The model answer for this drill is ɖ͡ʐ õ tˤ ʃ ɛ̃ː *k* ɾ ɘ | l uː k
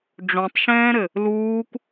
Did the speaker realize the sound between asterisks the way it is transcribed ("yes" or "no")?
no